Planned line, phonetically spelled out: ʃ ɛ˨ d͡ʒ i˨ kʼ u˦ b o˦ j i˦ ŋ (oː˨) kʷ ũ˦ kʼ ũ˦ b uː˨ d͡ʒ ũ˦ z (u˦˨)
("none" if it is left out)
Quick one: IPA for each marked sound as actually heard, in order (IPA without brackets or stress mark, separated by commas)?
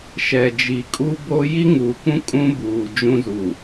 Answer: uː˨, u˨